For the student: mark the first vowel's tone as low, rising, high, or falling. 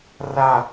falling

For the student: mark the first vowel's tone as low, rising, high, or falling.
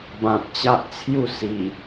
low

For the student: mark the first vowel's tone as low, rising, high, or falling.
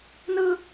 high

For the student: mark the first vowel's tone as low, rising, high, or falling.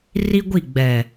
high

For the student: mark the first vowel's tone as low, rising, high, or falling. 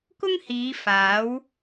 high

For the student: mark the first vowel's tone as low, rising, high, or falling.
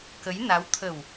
rising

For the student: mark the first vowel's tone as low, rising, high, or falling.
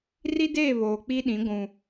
high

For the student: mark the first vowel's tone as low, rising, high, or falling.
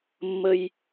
high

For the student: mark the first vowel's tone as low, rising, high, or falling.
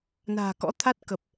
low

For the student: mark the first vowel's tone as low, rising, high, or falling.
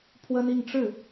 high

